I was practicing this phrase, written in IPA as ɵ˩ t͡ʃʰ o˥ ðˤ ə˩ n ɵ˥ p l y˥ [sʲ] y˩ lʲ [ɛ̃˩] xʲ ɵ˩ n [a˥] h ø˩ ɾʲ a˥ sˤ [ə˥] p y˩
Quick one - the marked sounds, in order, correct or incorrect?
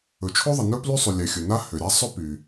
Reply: incorrect: sˤ, incorrect: ɛ˩, correct, incorrect: ɵ˥

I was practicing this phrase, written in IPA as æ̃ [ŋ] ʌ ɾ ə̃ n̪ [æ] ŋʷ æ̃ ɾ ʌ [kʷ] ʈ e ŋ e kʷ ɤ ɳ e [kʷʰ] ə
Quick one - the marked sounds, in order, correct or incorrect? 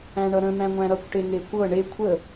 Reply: incorrect: ɳ, incorrect: æ̃, correct, correct

